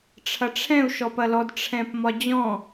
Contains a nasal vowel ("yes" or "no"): yes